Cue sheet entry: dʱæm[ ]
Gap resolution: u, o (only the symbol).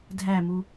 u